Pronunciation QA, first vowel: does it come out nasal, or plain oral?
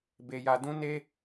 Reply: oral